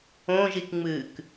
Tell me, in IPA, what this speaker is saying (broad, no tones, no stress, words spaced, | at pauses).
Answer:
õʒikŋ͡mɨːk